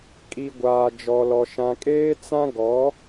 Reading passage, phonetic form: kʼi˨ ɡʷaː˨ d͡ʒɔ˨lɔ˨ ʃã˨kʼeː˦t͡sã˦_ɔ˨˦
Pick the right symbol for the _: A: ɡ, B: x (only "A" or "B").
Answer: A